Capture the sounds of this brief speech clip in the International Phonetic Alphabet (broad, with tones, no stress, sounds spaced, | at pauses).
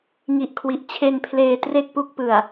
ŋ i˨˩ ʔ kʰ w i˨˩ ʔ t͡ɕʰ e˧ n pʰ l eː˧ t r e˥˩ k̚ p u˦˥ k̚ p ɯ˨˩ a̯